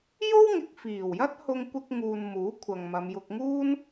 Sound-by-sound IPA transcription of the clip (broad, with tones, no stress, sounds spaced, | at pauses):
j o˥ w ŋ ɪ˨ k̚ f iː˨˩ w j ɐ˥ t̚ h ʊ˧ ŋ kʷ ɪ˧ k̚ ŋ uː˨ n m uː˨˥ kʷʰ ɐ˨ ŋ m ɐ˨˧ m j ʊ˧ k̚ ŋ uː˥ n